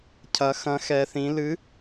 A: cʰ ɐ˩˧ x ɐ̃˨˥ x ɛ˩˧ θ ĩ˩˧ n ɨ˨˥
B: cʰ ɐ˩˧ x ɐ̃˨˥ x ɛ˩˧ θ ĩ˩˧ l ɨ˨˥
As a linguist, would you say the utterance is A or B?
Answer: B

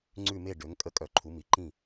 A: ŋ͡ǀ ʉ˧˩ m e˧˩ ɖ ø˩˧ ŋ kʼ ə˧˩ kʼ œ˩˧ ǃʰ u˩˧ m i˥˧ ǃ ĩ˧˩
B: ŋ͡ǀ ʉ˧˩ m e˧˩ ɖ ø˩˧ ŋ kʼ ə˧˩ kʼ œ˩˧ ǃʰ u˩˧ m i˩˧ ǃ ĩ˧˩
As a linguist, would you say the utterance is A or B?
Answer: B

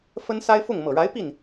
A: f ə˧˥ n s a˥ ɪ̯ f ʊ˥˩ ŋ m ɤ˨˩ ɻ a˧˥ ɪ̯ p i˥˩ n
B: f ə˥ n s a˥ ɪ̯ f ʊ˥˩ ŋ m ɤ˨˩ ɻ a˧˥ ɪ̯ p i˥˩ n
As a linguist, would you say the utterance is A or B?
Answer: B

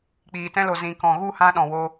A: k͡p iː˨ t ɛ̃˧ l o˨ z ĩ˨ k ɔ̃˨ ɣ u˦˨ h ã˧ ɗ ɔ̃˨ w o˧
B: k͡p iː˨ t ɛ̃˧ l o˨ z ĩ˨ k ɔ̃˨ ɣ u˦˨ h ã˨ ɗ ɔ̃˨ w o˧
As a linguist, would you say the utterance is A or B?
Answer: A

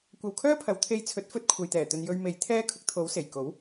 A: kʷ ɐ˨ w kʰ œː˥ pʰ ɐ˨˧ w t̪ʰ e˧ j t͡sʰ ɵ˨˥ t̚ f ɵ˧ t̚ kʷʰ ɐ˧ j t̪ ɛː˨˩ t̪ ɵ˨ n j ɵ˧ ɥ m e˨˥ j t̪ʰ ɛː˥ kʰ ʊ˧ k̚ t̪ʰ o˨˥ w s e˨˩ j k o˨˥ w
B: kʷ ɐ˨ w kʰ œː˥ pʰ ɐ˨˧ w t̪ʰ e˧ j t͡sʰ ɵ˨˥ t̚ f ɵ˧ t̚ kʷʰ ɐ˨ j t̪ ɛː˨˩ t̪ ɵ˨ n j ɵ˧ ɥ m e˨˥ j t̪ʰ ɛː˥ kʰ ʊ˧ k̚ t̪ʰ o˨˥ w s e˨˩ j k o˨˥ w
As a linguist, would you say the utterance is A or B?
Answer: B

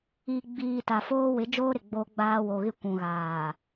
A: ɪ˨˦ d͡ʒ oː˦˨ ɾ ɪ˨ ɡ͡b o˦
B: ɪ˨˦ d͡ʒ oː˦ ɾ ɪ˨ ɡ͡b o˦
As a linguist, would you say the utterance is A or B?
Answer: B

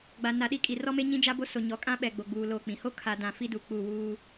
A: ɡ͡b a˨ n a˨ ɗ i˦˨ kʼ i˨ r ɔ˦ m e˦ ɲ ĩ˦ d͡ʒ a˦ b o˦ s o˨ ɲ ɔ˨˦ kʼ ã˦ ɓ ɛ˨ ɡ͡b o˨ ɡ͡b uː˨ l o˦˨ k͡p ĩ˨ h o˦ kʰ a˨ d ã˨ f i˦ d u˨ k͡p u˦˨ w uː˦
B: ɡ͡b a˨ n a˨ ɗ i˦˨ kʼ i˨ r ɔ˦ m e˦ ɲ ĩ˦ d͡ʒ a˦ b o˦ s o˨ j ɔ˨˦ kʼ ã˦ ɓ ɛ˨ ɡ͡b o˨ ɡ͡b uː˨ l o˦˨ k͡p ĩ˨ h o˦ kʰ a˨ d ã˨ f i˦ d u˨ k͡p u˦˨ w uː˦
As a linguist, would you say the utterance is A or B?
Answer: A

